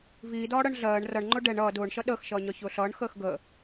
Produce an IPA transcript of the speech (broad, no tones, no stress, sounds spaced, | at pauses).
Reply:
v iː d ɒː ɽ ɜ ɳ ɮ ɜː ɳ r ʌ ɳ ŋ͡ǃ ʊ ɖ ɛ ɳ ʌː d ʊː ɳ ʃ ʌ ɗ əː x ʃ ʌː ɲ ɒ ç ʊː ɬ ʌː ɳ x əː x ɡ əː